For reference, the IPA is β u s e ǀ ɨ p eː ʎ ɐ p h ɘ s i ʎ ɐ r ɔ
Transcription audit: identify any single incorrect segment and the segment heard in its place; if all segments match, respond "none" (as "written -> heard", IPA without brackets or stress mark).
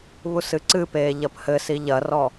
e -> ɨ